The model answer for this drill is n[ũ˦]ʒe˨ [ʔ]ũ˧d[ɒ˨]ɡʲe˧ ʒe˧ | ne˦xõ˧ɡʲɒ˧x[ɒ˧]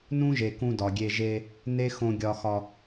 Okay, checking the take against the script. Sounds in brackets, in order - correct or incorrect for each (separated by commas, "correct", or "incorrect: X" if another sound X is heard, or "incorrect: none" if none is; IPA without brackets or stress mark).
correct, incorrect: k, correct, correct